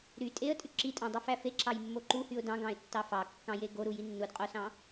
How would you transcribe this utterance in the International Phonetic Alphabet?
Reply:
ɾy tʼeə̯tʼy ǁitʼɑ̃dˤifæ feǁɑjmːo ǃuhyʊ̯ dɑ̃ɡɑ̃ɪ̯tːɑ fɑkːɑ̃je ɡoɾuji nːudqʼosɑ̃

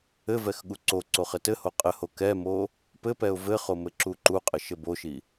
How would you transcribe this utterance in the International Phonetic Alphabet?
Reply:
ɘvɛx ɠuǀoǀoχ ɘtɘho qʼɘho kɛmo | pɘpɛʊ̯ vɘχo mɘǁuǃuqʼɘ ʃɘboʃi

